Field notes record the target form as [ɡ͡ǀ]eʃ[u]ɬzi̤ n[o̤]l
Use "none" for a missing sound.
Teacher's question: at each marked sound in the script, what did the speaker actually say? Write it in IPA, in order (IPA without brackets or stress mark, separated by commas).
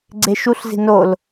ɡ͡ǀ, u, o